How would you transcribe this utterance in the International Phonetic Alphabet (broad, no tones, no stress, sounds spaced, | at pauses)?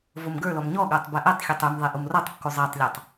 v o m ɡ ə˞ l ɔ m ɲ ɔ ɠ ə˞ tˤ b ɛ ʔ ɛ tˤ xʲ ɔ tˤ y m ðˤ e ʔ u m r ɔ tˤ kː u zˤ e tˤ lʲ ɔ tˤ